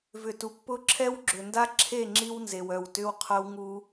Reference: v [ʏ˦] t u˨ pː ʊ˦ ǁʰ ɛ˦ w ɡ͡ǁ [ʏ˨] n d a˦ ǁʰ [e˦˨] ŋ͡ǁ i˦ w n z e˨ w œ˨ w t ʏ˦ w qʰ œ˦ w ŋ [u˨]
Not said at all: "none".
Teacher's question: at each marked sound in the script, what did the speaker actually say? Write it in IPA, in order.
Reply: ʏ˨, ʏ˨, e˦˨, u˦

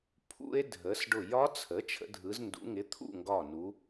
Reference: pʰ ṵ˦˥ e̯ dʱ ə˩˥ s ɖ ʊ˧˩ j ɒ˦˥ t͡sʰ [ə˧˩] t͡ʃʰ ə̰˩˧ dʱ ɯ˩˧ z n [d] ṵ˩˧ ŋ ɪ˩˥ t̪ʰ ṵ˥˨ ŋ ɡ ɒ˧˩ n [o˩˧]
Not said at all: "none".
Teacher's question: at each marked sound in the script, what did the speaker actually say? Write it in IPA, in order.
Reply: ə˩˥, d, u˩˧

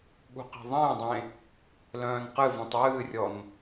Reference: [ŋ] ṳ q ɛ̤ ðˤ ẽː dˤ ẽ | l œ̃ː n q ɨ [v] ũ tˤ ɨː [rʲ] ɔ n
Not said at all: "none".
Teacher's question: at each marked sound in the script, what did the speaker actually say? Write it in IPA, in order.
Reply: ɠ, v, rʲ

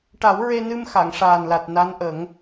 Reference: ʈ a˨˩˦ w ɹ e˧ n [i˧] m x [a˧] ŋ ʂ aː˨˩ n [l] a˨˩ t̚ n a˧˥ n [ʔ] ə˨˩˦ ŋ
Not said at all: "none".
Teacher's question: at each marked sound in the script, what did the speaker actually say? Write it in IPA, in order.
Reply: ɨ˧, a˨˩˨, l, ʔ

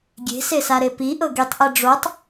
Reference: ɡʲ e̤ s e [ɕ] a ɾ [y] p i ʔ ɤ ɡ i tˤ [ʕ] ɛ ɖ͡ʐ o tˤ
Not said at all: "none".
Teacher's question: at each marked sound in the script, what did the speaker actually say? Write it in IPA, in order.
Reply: s, e, ʔ

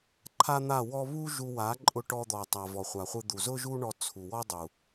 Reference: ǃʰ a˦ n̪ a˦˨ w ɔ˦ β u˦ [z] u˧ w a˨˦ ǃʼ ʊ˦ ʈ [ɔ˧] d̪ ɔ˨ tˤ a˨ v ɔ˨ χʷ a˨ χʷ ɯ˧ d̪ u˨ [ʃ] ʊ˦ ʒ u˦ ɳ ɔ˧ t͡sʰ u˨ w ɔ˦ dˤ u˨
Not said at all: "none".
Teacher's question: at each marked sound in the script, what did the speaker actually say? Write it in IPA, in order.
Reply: ʒ, ɔ˧, z

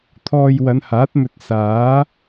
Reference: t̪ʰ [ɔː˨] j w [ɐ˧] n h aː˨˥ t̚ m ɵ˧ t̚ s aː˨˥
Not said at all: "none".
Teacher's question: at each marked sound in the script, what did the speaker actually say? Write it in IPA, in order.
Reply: ɔː˧, ɐ˨˧

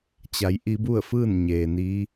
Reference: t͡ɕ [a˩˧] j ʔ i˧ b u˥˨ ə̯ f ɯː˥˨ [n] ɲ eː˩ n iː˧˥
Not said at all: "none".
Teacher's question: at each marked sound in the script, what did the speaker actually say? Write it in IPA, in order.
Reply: a˩˧, n

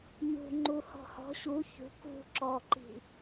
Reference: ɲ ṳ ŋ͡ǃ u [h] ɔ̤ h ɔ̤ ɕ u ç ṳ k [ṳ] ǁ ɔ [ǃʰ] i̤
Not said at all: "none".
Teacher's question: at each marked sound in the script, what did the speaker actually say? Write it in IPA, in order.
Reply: h, ṳ, ǃ

